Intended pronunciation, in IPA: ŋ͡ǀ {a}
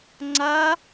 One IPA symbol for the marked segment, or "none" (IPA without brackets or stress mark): a